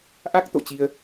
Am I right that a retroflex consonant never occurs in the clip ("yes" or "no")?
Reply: yes